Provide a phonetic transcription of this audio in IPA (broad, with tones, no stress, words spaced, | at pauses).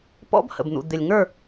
pɔ̰˦bhə̰˨bn̪ṵ˨ d̪ɪ˨lʲŋə˞˦˨